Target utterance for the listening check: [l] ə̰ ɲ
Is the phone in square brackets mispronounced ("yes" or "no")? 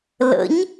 no